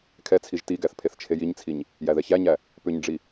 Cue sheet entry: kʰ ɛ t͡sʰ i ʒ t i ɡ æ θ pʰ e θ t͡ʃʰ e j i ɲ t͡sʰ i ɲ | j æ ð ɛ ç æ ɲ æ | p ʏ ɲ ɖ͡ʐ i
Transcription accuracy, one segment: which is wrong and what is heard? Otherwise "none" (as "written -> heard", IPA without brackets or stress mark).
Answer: none